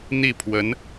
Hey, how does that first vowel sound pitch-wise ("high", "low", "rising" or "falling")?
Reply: falling